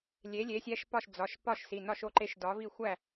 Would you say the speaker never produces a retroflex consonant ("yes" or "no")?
yes